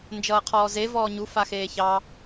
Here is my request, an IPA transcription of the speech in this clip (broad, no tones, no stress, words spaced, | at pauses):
nd͡ʒʌːqʰɔːze vɔːɲuf axeːçɑ